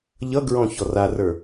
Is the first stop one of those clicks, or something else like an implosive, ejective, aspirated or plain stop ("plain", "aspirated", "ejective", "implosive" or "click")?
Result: plain